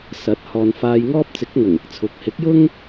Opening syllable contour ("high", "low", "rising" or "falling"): rising